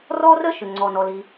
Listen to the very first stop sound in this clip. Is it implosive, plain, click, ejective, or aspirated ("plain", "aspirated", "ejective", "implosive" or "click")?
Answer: click